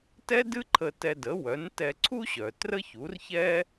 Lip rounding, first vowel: unrounded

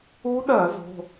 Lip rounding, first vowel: rounded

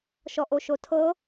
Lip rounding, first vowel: rounded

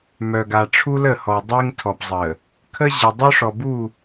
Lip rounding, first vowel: rounded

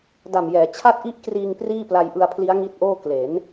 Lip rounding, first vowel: unrounded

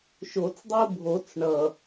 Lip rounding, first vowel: rounded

